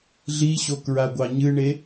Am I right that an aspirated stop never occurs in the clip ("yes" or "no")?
yes